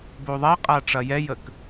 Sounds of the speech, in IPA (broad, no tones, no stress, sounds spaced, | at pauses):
b o ðˤ ɛ qʼ a ʈ͡ʂ ɐ j ɛ j ə k